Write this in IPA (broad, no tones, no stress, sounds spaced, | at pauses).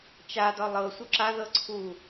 t͡ʃ a d ɒ lˠ ɤ sʷ œ ǁ a ð ɤ ǀʰ u